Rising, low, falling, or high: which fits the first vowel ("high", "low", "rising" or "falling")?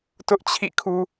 high